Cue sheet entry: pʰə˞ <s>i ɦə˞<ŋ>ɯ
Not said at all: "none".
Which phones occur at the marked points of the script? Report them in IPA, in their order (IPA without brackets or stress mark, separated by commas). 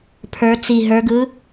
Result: t͡s, ɡ